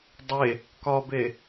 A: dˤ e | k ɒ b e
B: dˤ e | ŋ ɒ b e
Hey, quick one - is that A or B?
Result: A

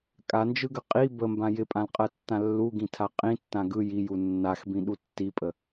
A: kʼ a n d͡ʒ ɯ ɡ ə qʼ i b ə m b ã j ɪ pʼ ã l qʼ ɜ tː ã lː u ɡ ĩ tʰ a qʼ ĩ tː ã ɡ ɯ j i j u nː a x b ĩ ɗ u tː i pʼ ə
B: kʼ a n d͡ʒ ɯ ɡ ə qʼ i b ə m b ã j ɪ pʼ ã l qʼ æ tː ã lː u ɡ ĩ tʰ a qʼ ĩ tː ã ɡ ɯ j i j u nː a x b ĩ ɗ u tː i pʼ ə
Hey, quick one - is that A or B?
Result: A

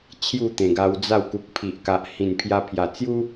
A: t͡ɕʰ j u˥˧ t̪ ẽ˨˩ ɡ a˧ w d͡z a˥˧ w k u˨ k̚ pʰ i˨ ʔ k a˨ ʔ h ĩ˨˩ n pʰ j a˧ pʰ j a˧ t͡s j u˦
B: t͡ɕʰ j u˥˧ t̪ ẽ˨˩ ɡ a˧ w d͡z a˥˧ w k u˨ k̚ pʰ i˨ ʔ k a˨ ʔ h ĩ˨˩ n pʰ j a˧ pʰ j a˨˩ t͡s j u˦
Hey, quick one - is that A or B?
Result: B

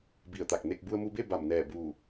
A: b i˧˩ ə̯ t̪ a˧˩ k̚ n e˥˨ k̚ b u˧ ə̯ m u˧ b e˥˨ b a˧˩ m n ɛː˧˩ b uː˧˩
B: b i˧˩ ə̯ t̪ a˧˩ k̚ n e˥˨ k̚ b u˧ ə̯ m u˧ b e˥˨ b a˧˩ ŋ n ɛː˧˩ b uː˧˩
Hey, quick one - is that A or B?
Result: A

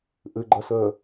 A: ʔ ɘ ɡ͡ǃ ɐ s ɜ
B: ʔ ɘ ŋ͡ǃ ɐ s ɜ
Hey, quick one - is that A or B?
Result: A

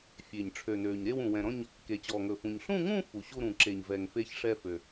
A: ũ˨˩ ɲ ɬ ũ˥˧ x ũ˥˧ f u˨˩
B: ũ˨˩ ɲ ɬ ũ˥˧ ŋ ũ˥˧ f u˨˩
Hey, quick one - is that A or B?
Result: B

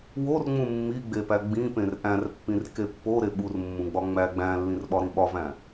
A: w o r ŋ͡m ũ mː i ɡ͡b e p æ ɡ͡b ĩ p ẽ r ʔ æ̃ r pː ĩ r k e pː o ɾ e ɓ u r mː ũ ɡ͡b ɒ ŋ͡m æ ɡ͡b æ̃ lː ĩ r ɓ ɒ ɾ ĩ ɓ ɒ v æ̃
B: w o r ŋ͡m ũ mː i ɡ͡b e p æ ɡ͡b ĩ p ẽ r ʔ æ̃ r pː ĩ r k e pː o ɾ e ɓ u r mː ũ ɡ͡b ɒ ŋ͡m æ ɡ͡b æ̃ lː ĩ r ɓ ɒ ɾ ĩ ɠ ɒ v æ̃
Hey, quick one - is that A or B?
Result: A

